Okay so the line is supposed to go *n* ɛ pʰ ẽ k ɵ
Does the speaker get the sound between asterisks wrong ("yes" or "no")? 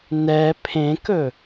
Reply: no